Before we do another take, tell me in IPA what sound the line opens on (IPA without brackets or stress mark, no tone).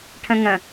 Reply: ʈʰ